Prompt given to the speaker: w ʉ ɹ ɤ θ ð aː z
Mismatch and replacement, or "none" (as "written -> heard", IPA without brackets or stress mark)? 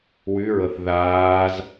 none